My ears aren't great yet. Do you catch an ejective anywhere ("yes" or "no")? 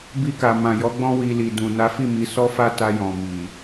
no